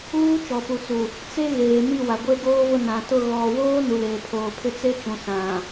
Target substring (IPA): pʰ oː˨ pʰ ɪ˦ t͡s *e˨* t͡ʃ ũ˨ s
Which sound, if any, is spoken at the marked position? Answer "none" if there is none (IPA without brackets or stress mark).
e˦